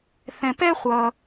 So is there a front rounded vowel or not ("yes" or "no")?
no